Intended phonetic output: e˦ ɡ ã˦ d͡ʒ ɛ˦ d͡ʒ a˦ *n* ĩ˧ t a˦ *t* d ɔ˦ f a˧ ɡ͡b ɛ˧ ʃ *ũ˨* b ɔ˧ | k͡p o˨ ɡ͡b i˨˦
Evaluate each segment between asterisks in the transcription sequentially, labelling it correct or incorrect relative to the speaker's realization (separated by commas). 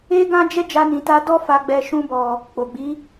correct, incorrect, incorrect